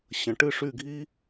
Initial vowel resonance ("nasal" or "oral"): nasal